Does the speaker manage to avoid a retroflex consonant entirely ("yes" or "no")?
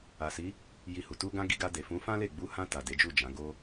yes